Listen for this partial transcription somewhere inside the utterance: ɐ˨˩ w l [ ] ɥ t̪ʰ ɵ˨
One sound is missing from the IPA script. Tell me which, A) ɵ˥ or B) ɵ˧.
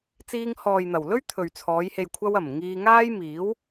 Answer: A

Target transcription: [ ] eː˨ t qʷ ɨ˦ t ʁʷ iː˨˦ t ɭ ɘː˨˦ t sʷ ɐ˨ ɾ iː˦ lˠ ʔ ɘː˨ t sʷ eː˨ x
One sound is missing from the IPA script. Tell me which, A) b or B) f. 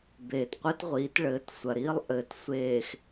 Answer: A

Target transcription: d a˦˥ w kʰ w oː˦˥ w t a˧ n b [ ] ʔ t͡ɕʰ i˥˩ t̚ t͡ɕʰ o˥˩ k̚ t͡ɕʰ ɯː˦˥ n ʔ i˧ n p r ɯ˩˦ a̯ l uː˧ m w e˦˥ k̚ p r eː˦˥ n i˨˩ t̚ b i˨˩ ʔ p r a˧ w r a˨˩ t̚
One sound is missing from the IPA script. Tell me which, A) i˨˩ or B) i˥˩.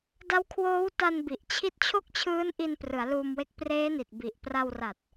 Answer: A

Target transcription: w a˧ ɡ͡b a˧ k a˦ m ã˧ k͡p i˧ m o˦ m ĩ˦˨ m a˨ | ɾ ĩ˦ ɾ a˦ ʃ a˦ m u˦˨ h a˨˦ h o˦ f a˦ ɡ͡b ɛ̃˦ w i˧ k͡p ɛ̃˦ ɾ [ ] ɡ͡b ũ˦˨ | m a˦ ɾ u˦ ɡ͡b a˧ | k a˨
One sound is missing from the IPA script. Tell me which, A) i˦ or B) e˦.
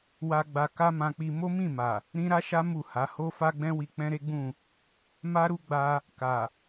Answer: B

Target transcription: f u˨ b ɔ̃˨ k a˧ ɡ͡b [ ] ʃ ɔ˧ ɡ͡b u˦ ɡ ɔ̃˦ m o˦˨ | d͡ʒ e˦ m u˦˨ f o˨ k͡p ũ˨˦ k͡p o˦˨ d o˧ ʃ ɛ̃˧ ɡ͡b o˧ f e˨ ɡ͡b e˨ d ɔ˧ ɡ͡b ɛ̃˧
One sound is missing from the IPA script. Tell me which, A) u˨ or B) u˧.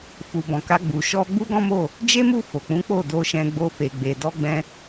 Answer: A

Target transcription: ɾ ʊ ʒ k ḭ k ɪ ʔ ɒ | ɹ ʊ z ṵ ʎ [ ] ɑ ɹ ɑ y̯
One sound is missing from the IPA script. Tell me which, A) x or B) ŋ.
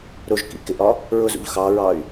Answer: A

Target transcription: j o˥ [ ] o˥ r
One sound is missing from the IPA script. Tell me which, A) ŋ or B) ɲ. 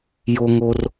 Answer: A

